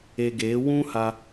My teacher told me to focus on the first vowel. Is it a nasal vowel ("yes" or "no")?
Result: no